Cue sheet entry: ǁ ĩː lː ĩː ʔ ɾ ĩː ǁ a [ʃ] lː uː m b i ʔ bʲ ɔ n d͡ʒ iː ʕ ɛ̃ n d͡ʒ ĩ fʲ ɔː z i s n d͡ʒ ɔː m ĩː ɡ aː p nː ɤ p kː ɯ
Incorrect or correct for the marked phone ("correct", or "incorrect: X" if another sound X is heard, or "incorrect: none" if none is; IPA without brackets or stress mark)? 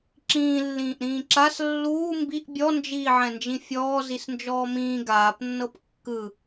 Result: incorrect: s